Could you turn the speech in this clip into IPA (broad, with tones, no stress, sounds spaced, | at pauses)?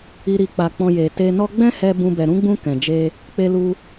i˨ ɾ i˨ k͡p a˨ k͡p ɔ̃˧ j e˨ t e˧ n ɔ˦ ɡ͡b ɛ̃˦ h ɛ˧ b ũ˦ b ɛ˧ ɾ ũ˦ ɡ͡b ũ˦ k ɛ̃˧ d͡ʒ e˧ | k͡p e˧ l u˧